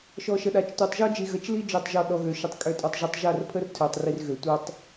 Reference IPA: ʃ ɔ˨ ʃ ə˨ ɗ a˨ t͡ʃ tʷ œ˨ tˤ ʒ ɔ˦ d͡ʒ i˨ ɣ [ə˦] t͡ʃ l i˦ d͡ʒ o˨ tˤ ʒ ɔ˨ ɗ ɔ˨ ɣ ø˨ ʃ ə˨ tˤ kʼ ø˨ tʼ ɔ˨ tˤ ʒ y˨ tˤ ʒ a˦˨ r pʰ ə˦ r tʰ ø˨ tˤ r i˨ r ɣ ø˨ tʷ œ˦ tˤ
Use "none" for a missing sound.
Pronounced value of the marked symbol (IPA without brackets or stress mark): ə˨